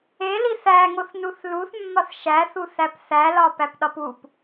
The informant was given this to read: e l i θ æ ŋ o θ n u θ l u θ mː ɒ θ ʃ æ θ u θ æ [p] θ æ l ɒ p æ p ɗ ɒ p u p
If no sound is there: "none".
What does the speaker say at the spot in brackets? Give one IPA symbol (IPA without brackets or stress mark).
p